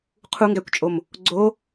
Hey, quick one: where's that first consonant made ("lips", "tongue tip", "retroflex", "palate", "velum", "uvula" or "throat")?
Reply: uvula